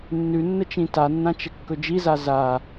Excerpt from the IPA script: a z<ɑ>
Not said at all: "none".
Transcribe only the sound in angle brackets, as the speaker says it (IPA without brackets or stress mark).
a